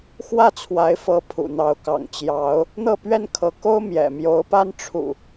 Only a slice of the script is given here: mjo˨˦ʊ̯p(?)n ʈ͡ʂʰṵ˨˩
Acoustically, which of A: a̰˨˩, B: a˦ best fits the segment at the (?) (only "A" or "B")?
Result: B